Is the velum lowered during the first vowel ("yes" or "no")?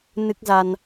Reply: no